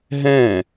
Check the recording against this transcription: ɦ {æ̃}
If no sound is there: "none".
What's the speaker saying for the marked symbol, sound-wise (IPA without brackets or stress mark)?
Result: ɛ̃